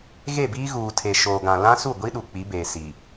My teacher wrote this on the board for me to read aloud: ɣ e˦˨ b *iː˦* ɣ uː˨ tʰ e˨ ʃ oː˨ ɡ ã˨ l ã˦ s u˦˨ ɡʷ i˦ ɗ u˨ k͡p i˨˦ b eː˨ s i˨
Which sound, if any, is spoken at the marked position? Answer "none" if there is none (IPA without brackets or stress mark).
iː˦